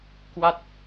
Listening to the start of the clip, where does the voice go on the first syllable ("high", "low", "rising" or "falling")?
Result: falling